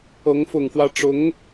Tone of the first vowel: rising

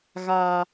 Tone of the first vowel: low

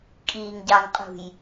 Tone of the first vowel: low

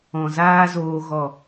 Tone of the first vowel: low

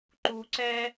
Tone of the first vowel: low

